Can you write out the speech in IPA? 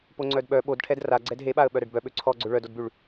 p o ŋ͡ǀ œ d ɓ œ ɓ o d ʈʰ ɛ d r a ɡ͡ǀ ɛ d ɦ e ɓ a ə̯ ɓ œ ɾ ɛ ɖ b œ ɓ ø ǀʰ ɔ ɡ͡ǀ ø ɭ œ d o d b y ɭ

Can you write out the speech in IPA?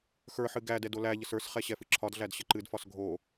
x ə˞ ħ ɨ ɡ æ d ɛ d o l æ ʎ ə s ə˞ s χ ɛ ɕ ɛ f ɨ ǁʰ ɒ d ɮ æ d ɕ ə ǃ ɨ d f ɒ s ɡʱ o

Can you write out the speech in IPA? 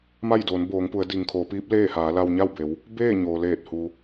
m a˥˨ j d oː˩˧ n b oː˩˧ ŋ p u˩˧ ə̯ d i˩ ŋ kʰ oː˩˧ p iː˧˥ p̚ l eː˥˨ h aː˩˧ l a˧ w ɲ a˥˨ w b e˩˧ w | b eː˥˨ ɲ oː˩ l eː˧˩ t̚ h u˧

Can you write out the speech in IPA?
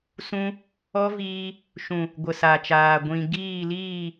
s ũ˦ | ɔ˦ v iː˧ | ʃ ũ˨ | ɡʷ ə˨ s a˨ t͡ʃ aː˨ ɡʷ ĩ˨ ɡ iː˦˨ l iː˦˨

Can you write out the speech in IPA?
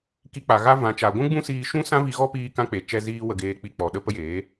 k i˧ k͡p a˨ ɣ a˦ v ã˨ t͡ʃ a˨ ɡʷ ũ˦ ɡ͡b ũ˦ s iː˧ ʃ ũ˦ s ã˦ v i˧ ɣ ɔ˦ p iː˦ k ã˦ k͡p e˨ t͡ʃ ɛ˧ z iː˧ w ə˨ ɡ eː˨ k͡p i˨ k͡p ɔ˨ ɗ ə˦ p ə˦ j eː˨˦

